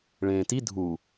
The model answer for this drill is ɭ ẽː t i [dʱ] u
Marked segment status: correct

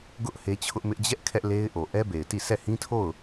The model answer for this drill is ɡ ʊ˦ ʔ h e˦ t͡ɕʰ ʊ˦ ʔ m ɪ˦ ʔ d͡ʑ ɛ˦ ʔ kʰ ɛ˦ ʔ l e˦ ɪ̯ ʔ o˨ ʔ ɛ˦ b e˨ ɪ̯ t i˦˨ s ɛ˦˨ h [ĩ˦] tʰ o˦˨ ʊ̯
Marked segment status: correct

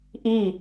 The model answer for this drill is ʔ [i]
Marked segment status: correct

